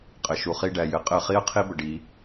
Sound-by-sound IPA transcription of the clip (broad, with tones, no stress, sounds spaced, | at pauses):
qʼ ɘ˨ ʃ u˨ χ i˧ ɖ æ˨ j ɘ˨ qʼ ɘ˦˨ χ i˦ ə̯ qʰ i˦ b ə˨ ɖ i˨˦